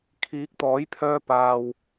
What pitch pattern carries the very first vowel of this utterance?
rising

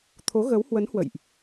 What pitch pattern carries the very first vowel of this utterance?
rising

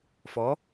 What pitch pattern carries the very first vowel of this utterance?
rising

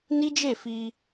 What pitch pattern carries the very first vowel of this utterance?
high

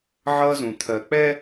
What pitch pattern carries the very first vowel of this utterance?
high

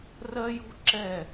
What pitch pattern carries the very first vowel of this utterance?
high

